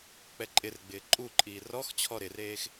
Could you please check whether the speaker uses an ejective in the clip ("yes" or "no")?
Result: yes